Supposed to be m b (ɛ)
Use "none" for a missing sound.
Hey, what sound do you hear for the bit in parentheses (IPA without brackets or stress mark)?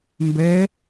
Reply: ɛ